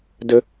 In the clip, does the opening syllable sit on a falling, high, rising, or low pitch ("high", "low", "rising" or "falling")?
low